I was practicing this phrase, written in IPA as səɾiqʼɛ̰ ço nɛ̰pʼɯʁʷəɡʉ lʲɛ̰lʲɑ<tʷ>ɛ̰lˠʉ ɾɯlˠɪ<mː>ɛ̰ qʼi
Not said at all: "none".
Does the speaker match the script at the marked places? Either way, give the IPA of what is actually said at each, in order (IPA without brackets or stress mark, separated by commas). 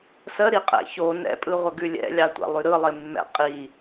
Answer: tʷ, mː